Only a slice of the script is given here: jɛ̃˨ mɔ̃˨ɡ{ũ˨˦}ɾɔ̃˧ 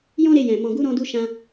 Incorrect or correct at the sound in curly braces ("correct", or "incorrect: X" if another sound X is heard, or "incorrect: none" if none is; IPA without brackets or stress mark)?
incorrect: u˨˦